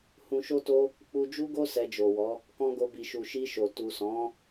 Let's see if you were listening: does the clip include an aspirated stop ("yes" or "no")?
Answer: no